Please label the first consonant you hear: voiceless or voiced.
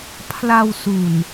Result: voiceless